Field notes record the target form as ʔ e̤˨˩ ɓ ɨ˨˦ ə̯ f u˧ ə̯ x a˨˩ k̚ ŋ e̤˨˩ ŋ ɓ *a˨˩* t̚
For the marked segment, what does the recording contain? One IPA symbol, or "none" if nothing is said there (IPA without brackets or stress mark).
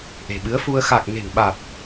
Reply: a˨˩